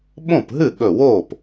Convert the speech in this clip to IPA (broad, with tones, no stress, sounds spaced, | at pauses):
ɓ õ˥˩ p ɦ ɨ˥˩ ɠ ɵ˧˩ w oː˥˩ p